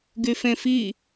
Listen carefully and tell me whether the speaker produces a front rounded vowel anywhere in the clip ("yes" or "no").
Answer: yes